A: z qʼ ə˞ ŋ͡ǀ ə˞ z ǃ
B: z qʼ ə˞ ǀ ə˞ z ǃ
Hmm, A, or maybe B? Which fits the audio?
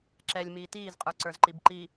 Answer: B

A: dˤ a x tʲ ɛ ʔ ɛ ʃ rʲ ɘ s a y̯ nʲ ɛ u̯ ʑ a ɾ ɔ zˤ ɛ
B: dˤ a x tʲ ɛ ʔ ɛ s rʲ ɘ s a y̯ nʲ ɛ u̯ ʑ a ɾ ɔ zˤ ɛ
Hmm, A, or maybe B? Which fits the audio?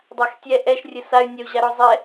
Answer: A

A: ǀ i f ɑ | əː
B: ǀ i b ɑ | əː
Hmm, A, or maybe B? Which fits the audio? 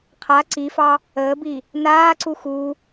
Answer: A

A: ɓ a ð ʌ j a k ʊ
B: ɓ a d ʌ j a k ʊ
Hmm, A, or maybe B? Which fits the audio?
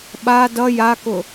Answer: B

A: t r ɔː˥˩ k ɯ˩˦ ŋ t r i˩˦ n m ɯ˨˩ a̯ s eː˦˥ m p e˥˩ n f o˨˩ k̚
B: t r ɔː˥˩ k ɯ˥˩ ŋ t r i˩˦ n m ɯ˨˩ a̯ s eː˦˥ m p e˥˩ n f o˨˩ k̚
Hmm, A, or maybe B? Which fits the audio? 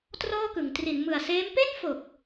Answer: A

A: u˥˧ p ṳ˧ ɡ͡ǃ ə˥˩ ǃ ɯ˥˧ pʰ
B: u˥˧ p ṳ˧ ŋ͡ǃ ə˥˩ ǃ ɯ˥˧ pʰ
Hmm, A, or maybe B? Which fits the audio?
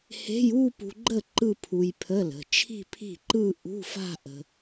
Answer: A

